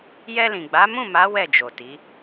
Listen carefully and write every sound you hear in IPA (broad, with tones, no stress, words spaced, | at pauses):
jɛ˧lĩ˨ɡ͡ba˨˦ mũ˦˨ma˨˦ wɛ˦˨d͡ʒo˨ti˨˦